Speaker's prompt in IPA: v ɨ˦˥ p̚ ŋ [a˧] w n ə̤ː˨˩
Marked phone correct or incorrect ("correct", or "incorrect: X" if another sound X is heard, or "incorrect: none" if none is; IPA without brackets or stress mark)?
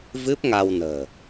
correct